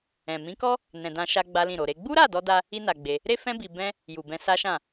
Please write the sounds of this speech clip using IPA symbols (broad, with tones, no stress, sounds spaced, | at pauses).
ɛ̃˨ m ĩ˨˦ k ɔ˦ | n ɛ̃˨ d ã˧ ʃ a˦ ɡ͡b a˦ l ĩ˦˨ ɾ o˨ ɾ e˧ ɡ͡b u˦ ɾ a˦˨ d ɔ˧ d a˧ | i˦ n a˧ ɡ͡b e˧ | ɾ e˦ f ɛ̃˦ b i˧ b ɛ̃˦ | j u˨ b ɛ̃˧ s a˦ ʃ ã˦˨